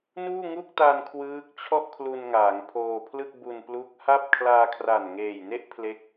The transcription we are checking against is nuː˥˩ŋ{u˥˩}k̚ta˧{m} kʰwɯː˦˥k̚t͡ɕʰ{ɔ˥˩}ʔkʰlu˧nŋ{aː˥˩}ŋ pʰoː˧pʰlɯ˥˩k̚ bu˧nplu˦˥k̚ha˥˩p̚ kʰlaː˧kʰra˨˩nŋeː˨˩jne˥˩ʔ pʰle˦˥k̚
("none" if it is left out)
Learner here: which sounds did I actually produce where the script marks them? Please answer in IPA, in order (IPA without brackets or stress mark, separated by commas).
u˥˩, n, ɔ˥˩, aː˩˦